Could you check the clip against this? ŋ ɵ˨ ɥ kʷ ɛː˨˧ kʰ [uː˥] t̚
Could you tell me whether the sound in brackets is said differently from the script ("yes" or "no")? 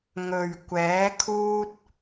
yes